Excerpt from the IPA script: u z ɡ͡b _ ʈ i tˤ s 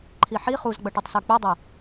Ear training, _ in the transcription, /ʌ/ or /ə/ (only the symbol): ʌ